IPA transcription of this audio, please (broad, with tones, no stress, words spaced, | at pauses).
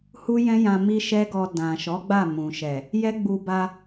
hu˦jɛ̃˦jã˧ mi˦ ʃɛ˦ɡɔ˧ dã˨ʃɔ˨˦ ɡ͡ba˦˨mũ˨ ʃɛ˨ | jɛ˦ɡ͡bu˧ ba˧